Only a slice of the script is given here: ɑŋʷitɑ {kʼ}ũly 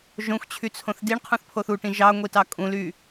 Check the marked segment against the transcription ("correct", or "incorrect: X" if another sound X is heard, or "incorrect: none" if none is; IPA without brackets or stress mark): correct